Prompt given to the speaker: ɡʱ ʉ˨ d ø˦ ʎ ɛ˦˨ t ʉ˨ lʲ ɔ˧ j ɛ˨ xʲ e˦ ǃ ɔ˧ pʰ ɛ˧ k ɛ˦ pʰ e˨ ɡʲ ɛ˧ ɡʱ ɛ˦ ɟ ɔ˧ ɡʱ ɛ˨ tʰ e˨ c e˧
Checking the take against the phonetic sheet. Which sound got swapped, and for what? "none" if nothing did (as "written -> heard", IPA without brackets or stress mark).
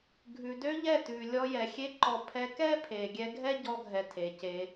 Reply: none